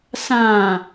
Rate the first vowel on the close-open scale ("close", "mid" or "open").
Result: open